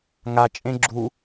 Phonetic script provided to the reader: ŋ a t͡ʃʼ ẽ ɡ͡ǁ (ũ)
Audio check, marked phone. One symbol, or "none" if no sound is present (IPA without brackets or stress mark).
u